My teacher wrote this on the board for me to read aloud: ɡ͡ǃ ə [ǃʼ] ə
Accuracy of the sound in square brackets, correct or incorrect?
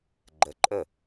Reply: correct